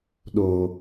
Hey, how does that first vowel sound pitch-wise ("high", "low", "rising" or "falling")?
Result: low